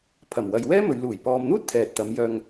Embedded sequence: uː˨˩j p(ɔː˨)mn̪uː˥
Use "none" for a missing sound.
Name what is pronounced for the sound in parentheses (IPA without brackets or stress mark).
ɔː˨